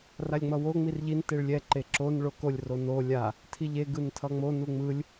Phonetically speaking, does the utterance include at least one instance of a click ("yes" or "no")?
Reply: yes